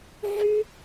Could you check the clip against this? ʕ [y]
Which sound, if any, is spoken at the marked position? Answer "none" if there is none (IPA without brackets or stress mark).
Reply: y